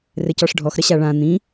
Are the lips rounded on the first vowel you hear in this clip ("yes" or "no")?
no